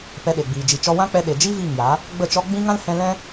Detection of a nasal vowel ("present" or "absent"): present